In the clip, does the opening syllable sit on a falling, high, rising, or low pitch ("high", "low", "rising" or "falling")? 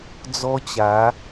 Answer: high